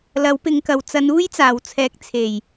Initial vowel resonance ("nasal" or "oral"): oral